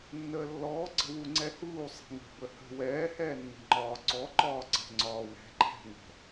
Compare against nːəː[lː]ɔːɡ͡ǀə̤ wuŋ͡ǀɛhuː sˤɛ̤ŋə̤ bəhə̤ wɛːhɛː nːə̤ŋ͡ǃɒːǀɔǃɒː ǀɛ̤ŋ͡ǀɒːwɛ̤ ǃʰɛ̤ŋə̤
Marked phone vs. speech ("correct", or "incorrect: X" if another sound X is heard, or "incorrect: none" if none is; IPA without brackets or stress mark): correct